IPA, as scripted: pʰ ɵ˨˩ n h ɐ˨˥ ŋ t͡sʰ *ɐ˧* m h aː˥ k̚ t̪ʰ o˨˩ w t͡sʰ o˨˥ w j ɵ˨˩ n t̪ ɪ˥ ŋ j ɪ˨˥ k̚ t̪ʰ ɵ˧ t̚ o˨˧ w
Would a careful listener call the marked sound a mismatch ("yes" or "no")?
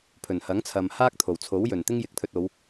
yes